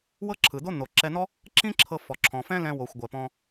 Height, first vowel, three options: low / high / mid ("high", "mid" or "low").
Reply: mid